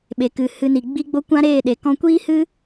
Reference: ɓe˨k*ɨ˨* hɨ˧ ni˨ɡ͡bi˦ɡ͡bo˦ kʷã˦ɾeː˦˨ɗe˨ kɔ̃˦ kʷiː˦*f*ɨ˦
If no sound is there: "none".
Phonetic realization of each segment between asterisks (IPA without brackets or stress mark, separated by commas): ɨ˨, h